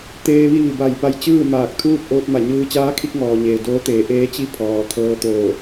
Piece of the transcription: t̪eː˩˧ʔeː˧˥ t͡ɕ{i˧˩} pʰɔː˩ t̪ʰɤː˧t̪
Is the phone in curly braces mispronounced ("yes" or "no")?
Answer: yes